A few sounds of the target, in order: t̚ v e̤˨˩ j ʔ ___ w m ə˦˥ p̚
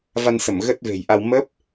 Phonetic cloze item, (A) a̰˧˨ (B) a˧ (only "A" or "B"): B